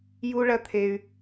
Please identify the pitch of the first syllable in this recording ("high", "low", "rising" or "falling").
high